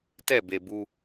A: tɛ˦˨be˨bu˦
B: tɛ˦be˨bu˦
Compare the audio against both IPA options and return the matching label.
A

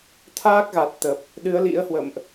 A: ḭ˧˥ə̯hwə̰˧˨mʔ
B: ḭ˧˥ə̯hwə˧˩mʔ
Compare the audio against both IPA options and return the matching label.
A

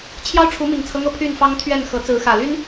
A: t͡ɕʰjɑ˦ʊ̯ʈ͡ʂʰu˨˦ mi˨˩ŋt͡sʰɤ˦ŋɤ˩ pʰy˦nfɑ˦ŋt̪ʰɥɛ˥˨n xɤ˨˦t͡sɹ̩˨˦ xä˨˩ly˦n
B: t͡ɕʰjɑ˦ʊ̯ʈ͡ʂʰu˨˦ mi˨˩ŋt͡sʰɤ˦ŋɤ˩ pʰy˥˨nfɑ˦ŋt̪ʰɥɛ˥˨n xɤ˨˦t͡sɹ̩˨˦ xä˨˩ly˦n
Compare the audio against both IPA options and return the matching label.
B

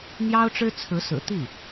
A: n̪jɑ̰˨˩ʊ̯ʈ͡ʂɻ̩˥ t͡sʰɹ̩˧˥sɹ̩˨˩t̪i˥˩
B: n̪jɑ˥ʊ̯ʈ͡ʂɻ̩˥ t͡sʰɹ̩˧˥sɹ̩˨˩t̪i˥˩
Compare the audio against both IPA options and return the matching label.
B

